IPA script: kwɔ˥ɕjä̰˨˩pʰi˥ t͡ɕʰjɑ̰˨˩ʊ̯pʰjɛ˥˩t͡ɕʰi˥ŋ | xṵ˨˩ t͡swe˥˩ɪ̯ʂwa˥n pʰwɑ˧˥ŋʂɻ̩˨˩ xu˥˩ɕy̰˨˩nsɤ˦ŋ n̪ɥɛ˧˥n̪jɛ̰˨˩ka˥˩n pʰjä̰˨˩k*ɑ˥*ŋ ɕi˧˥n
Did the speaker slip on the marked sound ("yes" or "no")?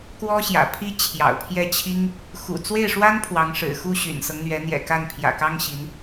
no